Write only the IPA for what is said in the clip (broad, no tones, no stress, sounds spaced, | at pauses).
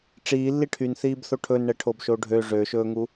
ʈ͡ʂ iː lː i ʈʰ y n θ iː b θ o ʈʰ ɵ n ɳ ɛ ʈʰ o b ʃ o ɖʱ ø ʐ ø ʃ ɵː ŋ u